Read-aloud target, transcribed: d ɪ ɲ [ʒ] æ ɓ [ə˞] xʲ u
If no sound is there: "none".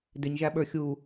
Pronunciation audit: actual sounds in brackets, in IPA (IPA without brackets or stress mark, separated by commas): ʒ, ə˞